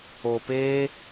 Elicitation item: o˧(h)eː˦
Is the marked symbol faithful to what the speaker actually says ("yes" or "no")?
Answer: no